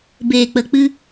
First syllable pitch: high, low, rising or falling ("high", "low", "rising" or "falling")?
low